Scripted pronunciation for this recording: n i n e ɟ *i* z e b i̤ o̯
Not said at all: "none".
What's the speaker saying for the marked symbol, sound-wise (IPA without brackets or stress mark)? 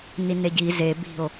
i